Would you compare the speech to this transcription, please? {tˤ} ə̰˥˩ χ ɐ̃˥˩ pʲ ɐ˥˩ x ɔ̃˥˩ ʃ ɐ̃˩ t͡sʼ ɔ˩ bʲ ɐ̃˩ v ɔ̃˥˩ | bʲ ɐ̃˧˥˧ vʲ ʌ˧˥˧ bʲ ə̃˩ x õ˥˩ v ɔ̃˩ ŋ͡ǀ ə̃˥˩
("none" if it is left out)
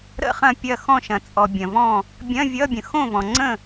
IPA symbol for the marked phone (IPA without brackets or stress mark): ɾ